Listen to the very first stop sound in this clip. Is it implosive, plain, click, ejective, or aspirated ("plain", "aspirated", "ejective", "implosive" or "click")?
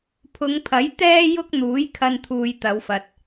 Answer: aspirated